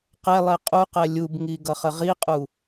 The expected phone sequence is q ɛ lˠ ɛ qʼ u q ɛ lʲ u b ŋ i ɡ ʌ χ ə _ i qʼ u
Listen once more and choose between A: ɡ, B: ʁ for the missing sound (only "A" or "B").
B